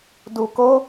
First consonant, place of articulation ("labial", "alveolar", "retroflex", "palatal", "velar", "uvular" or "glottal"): alveolar